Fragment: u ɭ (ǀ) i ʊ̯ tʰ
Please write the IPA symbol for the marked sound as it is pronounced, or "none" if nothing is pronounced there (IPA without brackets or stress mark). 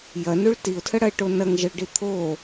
t